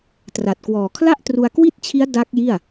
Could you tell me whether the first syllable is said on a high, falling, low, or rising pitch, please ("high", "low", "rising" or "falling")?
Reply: low